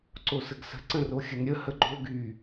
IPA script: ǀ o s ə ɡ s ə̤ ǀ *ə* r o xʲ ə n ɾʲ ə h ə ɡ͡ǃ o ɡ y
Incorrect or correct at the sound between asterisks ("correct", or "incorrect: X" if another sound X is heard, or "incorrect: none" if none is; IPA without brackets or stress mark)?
incorrect: ə̃